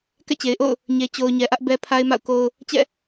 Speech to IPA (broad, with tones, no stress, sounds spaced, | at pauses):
k ɛ̰˦˨ t͡ɕ e˨ ɪ̯ ʔ o̰˦˨ ʊ̯ | ɲ e˨ t͡ɕ o˨ ʊ̯ ɲ ɛ˨ ʔ ä˦ ʔ b ɛ˦ pʰ a˦ ɪ̯ m a̰˦˨ ʊ̯ k o˦ ʊ̯ | t͡ɕ ɛ̰˦˨